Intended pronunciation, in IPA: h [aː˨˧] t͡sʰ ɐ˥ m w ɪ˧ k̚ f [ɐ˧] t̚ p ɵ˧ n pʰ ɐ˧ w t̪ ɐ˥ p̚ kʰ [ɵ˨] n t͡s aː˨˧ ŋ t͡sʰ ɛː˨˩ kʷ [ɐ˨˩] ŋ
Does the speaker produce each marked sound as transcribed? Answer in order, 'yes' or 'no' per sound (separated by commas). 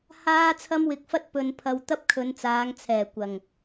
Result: no, no, no, yes